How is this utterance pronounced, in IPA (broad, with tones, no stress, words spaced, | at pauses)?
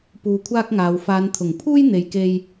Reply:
puː˧kʷʰaː˥k̚ŋaː˨˧w faː˨˧nt̪ʰʊ˨˩ŋ pʰuː˥jn̪e˨jke˧j